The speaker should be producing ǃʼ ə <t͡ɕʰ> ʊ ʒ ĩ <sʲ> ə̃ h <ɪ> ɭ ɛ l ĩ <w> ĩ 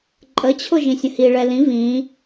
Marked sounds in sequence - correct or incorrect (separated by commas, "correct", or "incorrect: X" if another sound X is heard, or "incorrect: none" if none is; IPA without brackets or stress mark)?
correct, correct, incorrect: i, incorrect: v